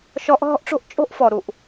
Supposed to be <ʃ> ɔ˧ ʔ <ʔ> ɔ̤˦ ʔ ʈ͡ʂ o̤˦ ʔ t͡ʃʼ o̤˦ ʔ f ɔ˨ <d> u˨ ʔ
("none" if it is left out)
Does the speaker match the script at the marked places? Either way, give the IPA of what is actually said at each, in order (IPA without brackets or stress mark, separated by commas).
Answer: ʃ, ɦ, ɾ